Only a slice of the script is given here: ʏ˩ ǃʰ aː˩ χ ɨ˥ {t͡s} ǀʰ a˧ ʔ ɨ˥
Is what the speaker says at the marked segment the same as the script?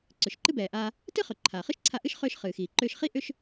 no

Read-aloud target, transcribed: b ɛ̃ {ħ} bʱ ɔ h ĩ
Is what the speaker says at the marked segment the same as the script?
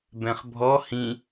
no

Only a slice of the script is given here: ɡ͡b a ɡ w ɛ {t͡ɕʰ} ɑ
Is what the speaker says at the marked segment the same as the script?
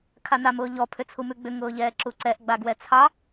no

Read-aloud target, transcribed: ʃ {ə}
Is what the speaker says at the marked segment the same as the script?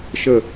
yes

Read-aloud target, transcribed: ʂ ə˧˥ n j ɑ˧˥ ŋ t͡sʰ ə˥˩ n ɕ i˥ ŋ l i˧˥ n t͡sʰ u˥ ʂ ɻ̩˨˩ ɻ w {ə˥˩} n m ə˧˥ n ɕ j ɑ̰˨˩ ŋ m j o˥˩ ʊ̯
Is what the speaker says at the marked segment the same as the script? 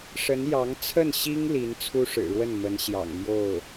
yes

